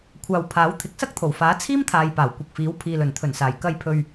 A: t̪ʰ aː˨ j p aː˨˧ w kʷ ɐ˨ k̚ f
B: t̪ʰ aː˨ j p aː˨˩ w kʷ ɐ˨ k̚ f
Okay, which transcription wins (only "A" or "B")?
B